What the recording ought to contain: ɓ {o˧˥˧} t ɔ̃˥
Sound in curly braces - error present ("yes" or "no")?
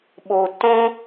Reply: yes